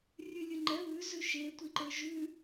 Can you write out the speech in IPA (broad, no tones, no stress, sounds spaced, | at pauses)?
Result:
rʲ ʉ lʲ ʉ ŋ͡ǃ ɛ β ʉ z ʉ ʃ e tʷ i ǃ ə˞ ʒ ʉ